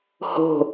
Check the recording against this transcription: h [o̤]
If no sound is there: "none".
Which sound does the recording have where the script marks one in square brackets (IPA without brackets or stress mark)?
o̤